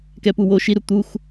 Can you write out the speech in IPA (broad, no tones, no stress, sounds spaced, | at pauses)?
k ɛ p u w o ʃ i ɾ u t̪ u x